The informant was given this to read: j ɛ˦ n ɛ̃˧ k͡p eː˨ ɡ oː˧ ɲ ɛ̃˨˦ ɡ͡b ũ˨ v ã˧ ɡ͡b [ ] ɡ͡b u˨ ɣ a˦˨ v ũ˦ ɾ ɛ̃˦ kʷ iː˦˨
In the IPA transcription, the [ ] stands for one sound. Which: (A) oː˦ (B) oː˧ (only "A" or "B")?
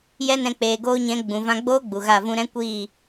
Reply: A